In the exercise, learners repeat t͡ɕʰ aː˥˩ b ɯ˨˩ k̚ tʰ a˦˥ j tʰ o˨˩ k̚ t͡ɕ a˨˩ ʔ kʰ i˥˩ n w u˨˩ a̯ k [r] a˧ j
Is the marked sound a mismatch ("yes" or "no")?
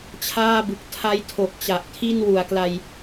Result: yes